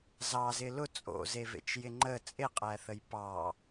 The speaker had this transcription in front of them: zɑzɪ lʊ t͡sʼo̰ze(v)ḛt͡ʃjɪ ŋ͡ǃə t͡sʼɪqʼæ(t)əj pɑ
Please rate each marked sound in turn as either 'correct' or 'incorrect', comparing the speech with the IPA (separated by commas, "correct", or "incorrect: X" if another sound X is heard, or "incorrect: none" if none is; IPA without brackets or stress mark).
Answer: correct, incorrect: θ